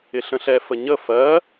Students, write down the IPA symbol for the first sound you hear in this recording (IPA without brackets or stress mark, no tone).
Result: ɪ